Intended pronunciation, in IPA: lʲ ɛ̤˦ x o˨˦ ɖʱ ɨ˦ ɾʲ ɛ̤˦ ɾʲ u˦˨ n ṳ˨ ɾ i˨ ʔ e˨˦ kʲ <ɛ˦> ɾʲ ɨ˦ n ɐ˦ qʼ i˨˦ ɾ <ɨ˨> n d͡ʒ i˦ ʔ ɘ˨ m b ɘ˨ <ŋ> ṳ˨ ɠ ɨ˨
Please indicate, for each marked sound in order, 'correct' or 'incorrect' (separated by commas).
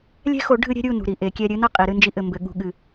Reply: correct, incorrect, incorrect